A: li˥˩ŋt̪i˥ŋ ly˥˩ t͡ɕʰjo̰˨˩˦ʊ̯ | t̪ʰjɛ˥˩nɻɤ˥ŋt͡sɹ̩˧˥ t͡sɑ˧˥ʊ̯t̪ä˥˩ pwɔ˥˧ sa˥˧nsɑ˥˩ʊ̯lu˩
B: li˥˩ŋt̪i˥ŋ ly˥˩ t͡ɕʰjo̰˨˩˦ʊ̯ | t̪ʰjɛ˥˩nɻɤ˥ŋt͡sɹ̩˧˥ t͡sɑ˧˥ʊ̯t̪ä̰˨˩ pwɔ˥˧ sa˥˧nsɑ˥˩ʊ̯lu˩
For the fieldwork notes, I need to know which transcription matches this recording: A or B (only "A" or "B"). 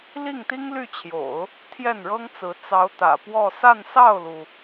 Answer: B